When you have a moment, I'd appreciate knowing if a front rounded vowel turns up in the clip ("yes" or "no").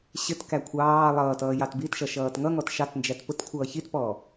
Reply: no